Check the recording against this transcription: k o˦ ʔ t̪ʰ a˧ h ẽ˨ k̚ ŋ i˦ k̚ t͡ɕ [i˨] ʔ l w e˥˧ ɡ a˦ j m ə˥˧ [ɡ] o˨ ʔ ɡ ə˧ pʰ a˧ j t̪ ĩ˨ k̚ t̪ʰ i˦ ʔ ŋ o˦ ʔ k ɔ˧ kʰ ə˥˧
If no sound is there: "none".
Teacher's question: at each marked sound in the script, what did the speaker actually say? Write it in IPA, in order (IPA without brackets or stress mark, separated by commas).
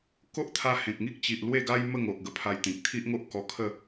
i˨, ŋ